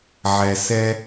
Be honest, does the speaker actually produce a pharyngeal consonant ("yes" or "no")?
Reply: yes